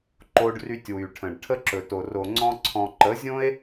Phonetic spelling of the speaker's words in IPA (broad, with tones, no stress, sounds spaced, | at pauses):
ǃ o˧ ɖ r y˧ tʲ w y˨ ʈʰ ə̃˨ ɖ ʈʰ ə˦ ǁ ɵ˨ t o˨ r o˨ ŋ͡ǀ ɔ̃˧ ǀʰ ɔ̃˨ ǃ ə˨˦ zʲ õ˦ e̯